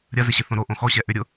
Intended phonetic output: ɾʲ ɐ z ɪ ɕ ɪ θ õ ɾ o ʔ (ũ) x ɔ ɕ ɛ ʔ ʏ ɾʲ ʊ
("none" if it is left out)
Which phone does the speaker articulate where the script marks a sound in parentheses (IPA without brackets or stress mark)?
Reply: õ